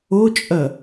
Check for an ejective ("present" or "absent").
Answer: present